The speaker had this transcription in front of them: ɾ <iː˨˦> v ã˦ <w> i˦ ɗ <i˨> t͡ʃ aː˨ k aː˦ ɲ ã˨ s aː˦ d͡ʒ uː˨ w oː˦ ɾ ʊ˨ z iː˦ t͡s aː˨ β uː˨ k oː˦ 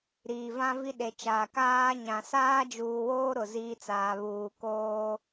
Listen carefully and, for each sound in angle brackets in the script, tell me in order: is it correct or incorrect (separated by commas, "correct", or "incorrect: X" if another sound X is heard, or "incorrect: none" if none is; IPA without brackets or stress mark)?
incorrect: iː˨, incorrect: v, incorrect: e˨